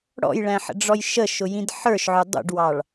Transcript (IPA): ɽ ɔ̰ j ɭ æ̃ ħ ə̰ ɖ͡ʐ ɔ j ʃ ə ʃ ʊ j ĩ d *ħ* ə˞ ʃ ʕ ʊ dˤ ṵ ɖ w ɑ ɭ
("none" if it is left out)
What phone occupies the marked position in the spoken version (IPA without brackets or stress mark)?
ħ